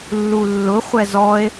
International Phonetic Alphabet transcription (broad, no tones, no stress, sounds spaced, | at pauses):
lː u lː ʊ χʷ ɛ z ɔ e̯